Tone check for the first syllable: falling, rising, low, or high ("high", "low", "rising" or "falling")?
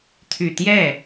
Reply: low